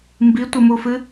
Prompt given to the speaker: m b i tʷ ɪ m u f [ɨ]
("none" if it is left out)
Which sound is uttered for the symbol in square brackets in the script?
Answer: ɨ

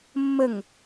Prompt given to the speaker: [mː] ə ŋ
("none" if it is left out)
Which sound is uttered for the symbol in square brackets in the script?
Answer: mː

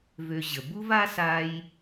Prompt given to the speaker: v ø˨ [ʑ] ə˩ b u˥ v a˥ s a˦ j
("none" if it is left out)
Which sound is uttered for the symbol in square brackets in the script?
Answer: ʑ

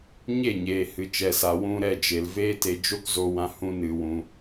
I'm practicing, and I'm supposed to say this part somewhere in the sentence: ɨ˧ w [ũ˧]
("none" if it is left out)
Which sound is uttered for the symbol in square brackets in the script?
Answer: ũ˧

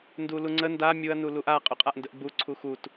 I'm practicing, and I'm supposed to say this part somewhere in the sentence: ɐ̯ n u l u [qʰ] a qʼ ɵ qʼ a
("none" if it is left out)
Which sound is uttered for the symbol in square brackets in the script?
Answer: ʔ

